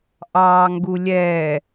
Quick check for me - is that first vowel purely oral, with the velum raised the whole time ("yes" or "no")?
yes